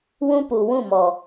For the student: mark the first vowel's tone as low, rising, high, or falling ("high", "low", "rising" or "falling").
high